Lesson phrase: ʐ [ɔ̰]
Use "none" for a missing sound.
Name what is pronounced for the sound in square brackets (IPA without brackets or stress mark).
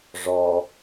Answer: ɔ